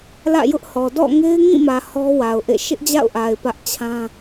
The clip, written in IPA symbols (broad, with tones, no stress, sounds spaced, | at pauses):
l ä̰˦˨ j ʊ˦ ʔ h ɔ˨ d ɔ̰˦˨ ŋ e˦ ɪ̯ ŋ ĩ˦˨ m ä˨ h ɔ˦ w a˨ ʊ̯ ʔ ḛ˦˨ ʃ ɪ˦ ʔ d͡ʑ a̰˦˨ ʊ̯ ʔ a˨ ɪ̯ p ä˦ ʔ t͡ɕʰ ã˦